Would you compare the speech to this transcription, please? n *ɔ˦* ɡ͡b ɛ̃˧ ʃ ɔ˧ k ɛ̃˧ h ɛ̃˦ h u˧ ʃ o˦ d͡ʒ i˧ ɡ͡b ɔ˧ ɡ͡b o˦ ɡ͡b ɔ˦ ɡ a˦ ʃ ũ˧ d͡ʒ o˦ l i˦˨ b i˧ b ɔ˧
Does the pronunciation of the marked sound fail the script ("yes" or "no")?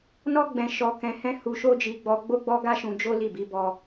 no